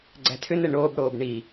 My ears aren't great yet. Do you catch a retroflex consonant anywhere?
yes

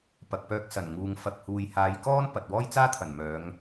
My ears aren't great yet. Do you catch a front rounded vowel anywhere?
yes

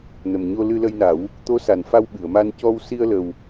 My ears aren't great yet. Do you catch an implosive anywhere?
yes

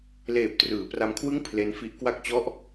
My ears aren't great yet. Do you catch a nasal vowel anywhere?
no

